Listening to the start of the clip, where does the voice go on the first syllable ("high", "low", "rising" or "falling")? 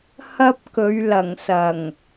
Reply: high